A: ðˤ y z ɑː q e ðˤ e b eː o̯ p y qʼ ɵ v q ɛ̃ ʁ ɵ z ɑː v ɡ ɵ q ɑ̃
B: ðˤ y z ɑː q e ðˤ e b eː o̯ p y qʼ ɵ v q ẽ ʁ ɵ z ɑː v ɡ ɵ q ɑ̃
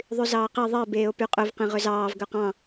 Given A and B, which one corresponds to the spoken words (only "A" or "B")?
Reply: B